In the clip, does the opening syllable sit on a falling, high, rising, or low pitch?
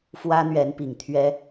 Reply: high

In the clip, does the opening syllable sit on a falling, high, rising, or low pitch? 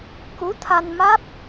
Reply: rising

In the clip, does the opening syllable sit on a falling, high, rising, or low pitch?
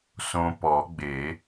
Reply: low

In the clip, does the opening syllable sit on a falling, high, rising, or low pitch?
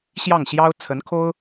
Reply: falling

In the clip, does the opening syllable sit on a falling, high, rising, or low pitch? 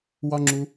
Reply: high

